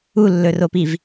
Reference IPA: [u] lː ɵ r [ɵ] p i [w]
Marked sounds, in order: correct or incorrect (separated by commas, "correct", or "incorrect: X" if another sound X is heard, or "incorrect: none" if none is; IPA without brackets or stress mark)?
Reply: correct, incorrect: o, incorrect: v